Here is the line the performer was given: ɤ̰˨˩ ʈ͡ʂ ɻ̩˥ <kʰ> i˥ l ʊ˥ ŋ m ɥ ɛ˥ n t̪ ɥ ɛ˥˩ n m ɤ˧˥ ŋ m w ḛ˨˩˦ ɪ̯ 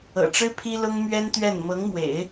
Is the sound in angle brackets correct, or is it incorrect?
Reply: incorrect